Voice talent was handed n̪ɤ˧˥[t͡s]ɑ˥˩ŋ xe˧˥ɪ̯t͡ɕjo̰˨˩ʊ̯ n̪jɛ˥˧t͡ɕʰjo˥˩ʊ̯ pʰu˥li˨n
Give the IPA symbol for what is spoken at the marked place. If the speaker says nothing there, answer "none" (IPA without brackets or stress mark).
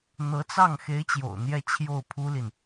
t͡s